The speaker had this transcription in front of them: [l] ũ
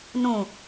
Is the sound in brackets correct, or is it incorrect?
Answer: incorrect